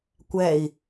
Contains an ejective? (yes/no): no